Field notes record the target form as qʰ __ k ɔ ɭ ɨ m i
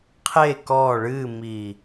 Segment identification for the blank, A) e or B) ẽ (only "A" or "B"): A